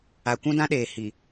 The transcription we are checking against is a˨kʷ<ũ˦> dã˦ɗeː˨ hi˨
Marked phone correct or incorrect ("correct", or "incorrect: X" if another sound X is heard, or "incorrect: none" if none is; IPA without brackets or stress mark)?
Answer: correct